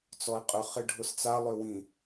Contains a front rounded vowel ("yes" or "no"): yes